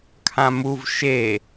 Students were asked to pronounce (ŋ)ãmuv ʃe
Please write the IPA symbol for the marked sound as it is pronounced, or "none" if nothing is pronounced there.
kʰ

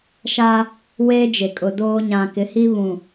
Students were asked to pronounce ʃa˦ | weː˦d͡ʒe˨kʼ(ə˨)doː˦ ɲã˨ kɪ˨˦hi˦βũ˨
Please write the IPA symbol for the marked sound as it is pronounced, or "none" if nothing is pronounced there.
ʊ˨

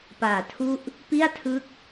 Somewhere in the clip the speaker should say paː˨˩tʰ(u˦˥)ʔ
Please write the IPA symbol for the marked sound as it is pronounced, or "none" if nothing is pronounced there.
u˥˩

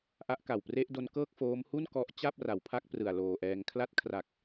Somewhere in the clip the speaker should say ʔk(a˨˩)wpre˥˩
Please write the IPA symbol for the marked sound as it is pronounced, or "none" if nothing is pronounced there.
a˨˩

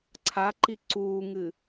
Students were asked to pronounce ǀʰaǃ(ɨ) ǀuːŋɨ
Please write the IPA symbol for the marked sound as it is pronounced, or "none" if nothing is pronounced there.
i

